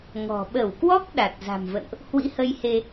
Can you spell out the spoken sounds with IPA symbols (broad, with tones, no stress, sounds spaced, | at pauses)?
ŋ ɔ̤˨˩ ɓ ə˧˩ w k w ɔ˦˥ k̚ ɗ a˨˩ t̚ z a̤˨˩ m v ə̰˧˨ n ʔ | h w ḭ˧˥ h ə˧ j h e˧